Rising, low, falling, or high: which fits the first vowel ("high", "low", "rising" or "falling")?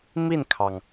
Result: falling